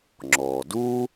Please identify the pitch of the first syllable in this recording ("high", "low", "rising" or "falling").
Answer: low